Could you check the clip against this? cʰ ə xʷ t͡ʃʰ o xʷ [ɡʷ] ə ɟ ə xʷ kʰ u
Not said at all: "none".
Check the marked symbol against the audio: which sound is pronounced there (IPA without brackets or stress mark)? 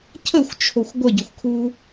ɡʷ